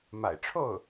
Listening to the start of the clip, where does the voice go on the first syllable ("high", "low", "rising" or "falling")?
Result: low